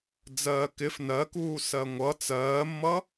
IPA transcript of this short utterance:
d͡z ɜː k ɪ f n ɜ k uː s ɜ ŋʷ ʌ t͡s ɜː mː ʌ

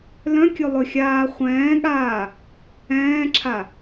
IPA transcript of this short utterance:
l œ̃ kʲ ɵ lˠ ɵ xʲ aː χʷ ɛ̃ː ɠ aː | ɛ̃ː ǁʰ a

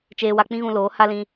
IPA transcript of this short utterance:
t͡ʃ eː˧ w a˧ k͡p ĩ˦ ɣ ũ˧ l oː˨˦ h a˦ l ĩ˧

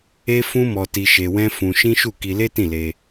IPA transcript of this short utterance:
e˦ f ũ˦ m ɔ˧ t i˧ ʃ e˧ w ɛ̃˦ f ũ˧ ʃ ĩ˦ ʃ u˦˨ k i˧ l e˦ t ĩ˦˨ l e˧

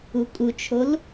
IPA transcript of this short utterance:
u kʼ u t͡ʃʰ o l

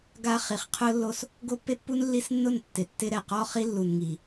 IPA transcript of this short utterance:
ɡ a˦ χ i˨ χ qʰ ʊ˦ lː o˦ s | ɡ o˦ pː e˦ pː u˦ n lː i˦ s nː ʊ˦˨ n tː ɪ˨ tː ɪ˦ ɾ ɛ˨ q ɔ˦ χ i˦ lː u˨ n ŋ i˨

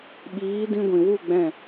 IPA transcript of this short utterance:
ɓ iː˨˦ d ĩ˧ ɡʷ ĩ˨ w u˦˨ ɡ͡b ɛ̃˦˨

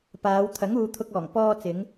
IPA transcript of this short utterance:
p aː˨˧ w t̪ʰ ɐ˨˥ ŋ uː˨˧ t̪ʰ ʊ˧ k̚ ɔː˨˩ ŋ p ɔː˧ t͡s ɪ˨˧ ŋ

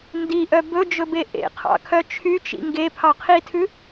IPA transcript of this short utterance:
n d i ʔ œ b ɵ d͡ʒ ɵ b e ʔ ḛ qʰ ɑ̰ kʰ œ t͡ʃʰ y t͡ʃ ḭ ŋ ɡ e pʰ ɑ qʰ i tʰ ʉ

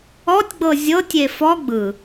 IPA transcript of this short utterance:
ɔ tʲ ɡ͡b ɤ zʲ ɤ tʲ e f ɔ ɡ͡b ɯ

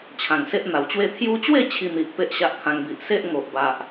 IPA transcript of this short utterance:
t͡ɕʰ ã˨˩ ŋ s e˦ ʔ n̪ a˨˩ w t͡ɕ w e˥˧ t̪ʰ j u˧ t͡ɕ w e˥˧ t͡ɕʰ i˧ n̪ i˨ ʔ p e˦ ʔ ɕ a˦ ʔ kʰ ã˧ ŋ b i˨ ʔ s e˦ ʔ ŋ o˨ ʔ b a˨ ʔ

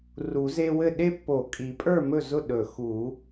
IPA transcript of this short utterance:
r u˨˩˦ z e˦ w ɘ˥˨ ɗ e˦ pː o˨˩˦ kʼ i˨˩˦ pʼ ə˞˥˨ m ɵ˥˨ z ʊ˥˨ ɗ ɵ˨˩˦ x u˨˩˦

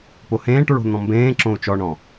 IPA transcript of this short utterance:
p o h ẽː ʈ ɹ o̤ n̪ ɔ̃ m b ẽː ǁ õ u̯ t͡ʃ ɔ ɳ ɔ̃

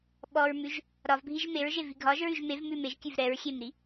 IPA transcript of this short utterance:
ɓ ɔ ɹ m ʉ ʒ | ɾ ɒ v bʱ i ʒ m e ɹ ʒ e v i ɡʱ ɒ ʒ ɹ ʉ ʒ m e v m ʉ m e ʒ kʲ ʉ v ɾ ɛ ɹ xʲ e m ɾ i

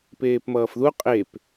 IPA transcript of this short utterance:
p eː p m ʌː f ð u qʼ e p

